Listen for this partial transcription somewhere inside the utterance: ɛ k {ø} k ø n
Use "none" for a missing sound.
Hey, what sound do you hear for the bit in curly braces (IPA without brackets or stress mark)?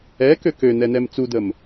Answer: ø